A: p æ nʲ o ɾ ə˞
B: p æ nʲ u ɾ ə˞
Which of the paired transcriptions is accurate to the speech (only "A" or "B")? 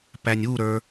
B